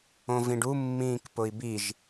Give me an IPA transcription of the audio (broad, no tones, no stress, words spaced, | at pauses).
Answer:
õvĩɖu mːĩːkpʊi̯biʒ